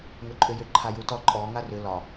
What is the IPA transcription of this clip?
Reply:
ŋʏǃʼʏjʏ ǃʰajutɔ ǃʼɔ ŋarʏ lɒ

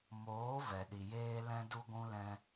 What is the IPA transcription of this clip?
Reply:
moː˨˦vɛ˨ɗi˨ jeː˦lɛ̃˦du˦ɡʷũ˦ lɛ̃˧

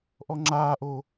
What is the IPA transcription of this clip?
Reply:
ʔɔŋ͡ǁaːʔo

